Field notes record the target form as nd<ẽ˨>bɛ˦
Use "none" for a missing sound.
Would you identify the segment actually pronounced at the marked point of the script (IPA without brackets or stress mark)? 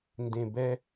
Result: ẽ˨